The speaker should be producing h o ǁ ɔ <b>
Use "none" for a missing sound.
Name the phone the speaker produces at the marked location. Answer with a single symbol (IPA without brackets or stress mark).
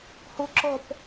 p